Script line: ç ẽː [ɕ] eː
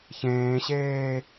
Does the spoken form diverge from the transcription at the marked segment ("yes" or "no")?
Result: no